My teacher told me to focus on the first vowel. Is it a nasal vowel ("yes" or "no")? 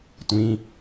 yes